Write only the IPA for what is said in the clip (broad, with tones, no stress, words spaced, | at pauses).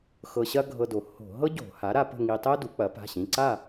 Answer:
xɤ˧ɕɐ˥ɡʱɤ˧do˩˥ ho̤˧˩˧ ɦɤ˥ɟo̤˧˩˧ha˩˥ ɾa˧pə̤˥˨ ŋi˧tˤɛ˥du˩˥ k͡pɐ˩˥pa̤˩˧˩ɕĩ˩˧˩ǀa˥˨